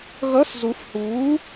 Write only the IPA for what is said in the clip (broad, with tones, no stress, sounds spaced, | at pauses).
ɣ ʌ˧˥˧ s z u˨˥ f h uː˨˥